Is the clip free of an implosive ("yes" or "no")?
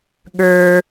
no